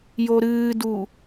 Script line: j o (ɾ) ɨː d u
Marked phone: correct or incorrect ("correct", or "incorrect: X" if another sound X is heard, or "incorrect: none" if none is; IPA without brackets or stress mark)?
correct